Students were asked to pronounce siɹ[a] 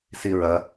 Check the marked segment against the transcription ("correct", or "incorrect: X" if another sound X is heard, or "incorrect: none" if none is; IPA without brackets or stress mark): incorrect: ɐ